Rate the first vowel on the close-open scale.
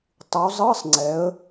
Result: close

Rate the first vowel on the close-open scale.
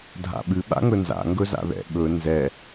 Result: open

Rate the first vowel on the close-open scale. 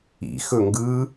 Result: close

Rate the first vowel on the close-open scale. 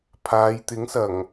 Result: open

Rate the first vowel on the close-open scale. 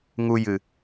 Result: close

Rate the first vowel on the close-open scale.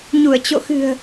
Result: close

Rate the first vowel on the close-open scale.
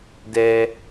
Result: mid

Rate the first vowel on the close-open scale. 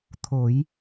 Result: mid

